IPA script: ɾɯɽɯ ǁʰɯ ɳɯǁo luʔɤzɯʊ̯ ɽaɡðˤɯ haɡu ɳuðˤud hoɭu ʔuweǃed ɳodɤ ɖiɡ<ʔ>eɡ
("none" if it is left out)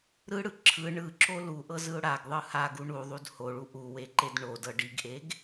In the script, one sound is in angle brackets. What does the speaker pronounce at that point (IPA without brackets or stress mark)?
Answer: ʔ